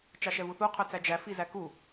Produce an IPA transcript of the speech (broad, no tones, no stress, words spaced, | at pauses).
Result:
t͡ʃɑʃɛvuθu qʰœt͡sæd͡ʒæ fizæku